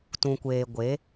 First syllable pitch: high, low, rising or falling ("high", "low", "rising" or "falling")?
low